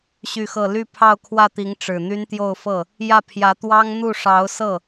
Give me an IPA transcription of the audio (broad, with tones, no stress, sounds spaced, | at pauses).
ɕ y˥˧ x ɤ˥˧ l y˥˧ pʰ ɑ˥˧ ʊ̯ kʰ w ä˥˩ t̪ i˧˥ ŋ ʈ͡ʂ ɻ̩˨˩ n̪ y˥ n t̪ j o˥˧ ʊ̯ f ɤ˥˩ | j ä˥˩ pʰ j ä˧˥ t̪ w ɑ˥ ŋ n̪ u˥˩ ʂ ɑ˧˥ ʊ̯ s ɤ˥˩